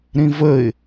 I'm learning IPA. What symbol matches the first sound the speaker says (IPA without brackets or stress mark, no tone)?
ɾ